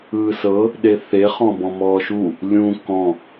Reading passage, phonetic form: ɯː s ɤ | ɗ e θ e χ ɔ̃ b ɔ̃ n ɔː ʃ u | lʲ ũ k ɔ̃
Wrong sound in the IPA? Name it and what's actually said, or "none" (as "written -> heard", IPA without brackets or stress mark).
n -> m